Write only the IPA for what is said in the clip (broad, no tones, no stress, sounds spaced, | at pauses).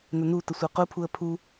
n ə n u t ə sʷ e q u pʰ u ə̯ pʰ u